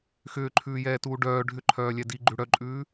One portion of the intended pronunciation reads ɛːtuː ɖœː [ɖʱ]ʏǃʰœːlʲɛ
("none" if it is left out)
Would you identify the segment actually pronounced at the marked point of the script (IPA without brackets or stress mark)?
ɖʱ